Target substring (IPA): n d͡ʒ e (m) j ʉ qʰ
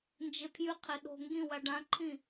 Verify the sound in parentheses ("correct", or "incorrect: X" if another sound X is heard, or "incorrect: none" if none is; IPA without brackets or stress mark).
incorrect: pʰ